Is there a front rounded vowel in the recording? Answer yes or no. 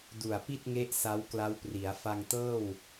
no